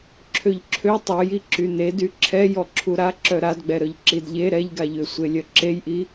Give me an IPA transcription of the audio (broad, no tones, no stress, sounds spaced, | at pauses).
ǁʰ ø ʎ ǁʰ ø tˤ o j i ǁ y n e d y ǁʰ ɛ j ɔ ǁʰ u ɾ a ǁ œ ɾ a d ɡ͡b ɛ ɾ œ ʎ ǁ i d ʎ e ɾ ɛ ʎ ɡ a ʎ ø sʷ e lʲ œ ǁ e j ʔ i